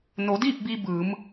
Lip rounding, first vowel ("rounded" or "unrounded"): rounded